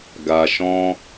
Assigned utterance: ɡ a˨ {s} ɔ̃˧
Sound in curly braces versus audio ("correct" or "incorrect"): incorrect